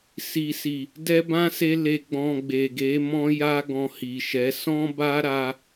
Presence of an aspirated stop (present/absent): absent